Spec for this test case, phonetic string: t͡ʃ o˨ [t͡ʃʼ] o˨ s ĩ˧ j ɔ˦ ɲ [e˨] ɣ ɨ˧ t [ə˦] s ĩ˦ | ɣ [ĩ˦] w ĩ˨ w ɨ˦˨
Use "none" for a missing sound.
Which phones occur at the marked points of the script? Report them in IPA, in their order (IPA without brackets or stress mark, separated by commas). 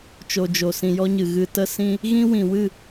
d͡ʒ, ɨ˨, ə˦, ĩ˦